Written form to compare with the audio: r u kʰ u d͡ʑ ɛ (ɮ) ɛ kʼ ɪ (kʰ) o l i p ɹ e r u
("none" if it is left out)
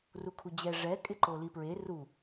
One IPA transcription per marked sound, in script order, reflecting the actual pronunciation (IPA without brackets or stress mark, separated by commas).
ʐ, ǃ